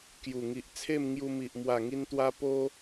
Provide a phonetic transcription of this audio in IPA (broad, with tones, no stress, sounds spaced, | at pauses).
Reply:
k j u˨˩ ŋ i˨ ʔ t͡sʰ e˥˧ m ŋ j u˧ m i˨ ʔ m w a˨˩ ŋ i˧ n t̪ w a˧ p o˦